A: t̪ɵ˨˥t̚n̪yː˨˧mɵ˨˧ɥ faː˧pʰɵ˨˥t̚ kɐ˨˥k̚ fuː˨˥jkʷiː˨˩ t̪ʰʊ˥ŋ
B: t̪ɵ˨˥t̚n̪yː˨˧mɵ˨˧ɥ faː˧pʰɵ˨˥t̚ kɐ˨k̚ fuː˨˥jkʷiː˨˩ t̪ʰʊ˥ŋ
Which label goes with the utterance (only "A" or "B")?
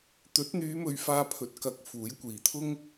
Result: A